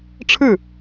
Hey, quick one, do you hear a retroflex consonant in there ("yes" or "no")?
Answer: yes